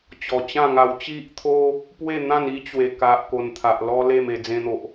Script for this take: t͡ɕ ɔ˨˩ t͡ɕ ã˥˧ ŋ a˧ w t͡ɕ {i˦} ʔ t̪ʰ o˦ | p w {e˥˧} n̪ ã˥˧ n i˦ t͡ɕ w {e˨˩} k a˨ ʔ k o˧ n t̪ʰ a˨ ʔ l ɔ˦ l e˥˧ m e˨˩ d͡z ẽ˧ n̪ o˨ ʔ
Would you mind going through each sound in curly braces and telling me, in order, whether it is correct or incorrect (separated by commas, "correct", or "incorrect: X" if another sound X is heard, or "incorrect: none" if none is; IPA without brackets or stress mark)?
correct, correct, correct